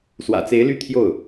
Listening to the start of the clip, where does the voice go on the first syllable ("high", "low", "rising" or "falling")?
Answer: low